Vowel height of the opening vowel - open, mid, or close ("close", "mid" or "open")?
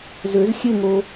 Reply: mid